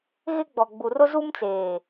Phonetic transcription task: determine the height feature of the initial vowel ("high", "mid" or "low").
high